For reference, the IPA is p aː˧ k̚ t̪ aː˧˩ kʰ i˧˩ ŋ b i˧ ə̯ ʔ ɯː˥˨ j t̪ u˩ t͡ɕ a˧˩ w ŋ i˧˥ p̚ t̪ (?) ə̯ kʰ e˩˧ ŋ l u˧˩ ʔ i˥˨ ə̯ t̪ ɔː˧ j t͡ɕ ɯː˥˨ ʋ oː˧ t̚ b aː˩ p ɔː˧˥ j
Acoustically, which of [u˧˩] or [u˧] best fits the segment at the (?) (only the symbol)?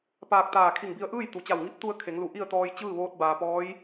u˧